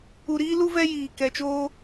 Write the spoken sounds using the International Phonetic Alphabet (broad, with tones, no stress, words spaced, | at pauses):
u˨ɾiː˦lu˦ vɛ˦jiː˨kɛ˨t͡ʃoː˦